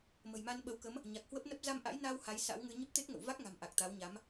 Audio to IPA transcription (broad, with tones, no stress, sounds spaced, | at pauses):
m ə̤˨˩ j m a˧ n ɓ ə˨˦ w k ə˨˦ m | ɲ a˨˩ k̚ h w ə˦˥ p̚ n ə˦˥ p̚ z a˧ m ʔ a̰˧˥ j n aː˧ w h a˨˦ j s a̰˧˥ w ŋ ɨ˧ ɲ ə˦˥ p̚ t̪ e˦˥ k̚ ŋ ə̰˧˨ w v a˦˥ k̚ ŋ a̤˨˩ m ʔ a˨˩ k̚ t̪ a˨˦ w ɲ a˨˦ m